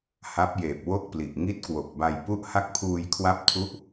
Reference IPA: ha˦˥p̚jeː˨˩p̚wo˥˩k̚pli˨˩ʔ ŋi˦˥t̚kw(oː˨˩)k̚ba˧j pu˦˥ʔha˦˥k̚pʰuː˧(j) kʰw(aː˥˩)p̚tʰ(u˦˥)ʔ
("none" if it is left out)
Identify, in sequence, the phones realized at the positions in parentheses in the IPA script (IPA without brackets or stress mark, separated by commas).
o˨˩, j, a˥˩, u˥˩